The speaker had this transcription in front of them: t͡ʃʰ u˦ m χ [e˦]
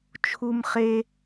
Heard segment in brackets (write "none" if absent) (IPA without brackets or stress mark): e˦